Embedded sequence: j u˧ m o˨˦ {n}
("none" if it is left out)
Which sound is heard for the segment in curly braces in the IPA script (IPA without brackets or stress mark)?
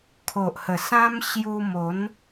n